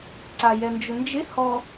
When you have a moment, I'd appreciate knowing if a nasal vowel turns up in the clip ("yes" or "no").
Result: no